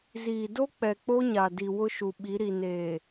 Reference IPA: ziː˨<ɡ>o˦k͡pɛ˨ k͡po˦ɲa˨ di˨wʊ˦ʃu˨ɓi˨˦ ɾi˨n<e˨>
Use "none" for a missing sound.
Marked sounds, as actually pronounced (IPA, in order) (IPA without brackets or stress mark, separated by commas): d, eː˨